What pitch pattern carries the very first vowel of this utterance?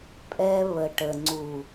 high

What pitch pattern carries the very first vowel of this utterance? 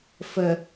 low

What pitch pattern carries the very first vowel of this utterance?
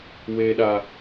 high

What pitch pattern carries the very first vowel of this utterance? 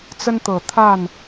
high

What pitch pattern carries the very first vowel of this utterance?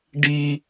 high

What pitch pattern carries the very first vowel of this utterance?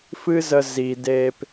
high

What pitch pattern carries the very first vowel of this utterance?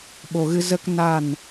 low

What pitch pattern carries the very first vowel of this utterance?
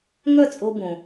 falling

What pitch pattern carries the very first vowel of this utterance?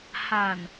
low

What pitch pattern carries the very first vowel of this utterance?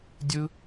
high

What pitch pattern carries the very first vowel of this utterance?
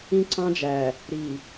high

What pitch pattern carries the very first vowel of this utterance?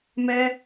high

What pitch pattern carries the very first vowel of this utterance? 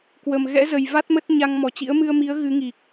low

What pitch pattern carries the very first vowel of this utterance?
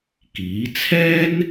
rising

